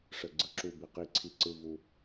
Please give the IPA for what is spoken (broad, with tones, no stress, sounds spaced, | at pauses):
ʂ ə˨˩ ɡ͡ǀ ɯ˥˧ ǁ u˨˩ b i˨˩ q i˨˩ ǀʰ i˨˩ ǀ ɯ˨˩ v u˨˩